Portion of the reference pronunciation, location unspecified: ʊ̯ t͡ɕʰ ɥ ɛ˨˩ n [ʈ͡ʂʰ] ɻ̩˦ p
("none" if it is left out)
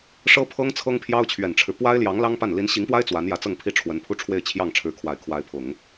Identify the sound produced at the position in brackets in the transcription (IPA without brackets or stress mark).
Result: ʈ͡ʂʰ